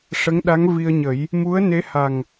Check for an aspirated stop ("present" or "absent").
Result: absent